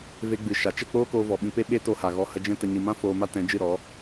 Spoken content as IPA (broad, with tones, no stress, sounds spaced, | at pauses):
v e˧ ɡ͡b ɨ˨ ʃ a˨ t͡ʃ ə˦˨ k͡p oː˦ k oː˧ v ɔ˨ ɓ ĩ˧ p e˦ ɓ e˦ t o˧ h a˨ ɣ ɔ˧ h ə˧ d͡ʒ ɛ̃˦ t ə˧ ɲ ɨ˨ m ã˦ f oː˧ m a˦ t ɛ̃˨˦ d͡ʒ ɨ˦˨ ɾ ɔ˨˦